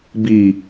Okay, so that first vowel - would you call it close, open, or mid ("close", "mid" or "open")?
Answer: close